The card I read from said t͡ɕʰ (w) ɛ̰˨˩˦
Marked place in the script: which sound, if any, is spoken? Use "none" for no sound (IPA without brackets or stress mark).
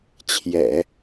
j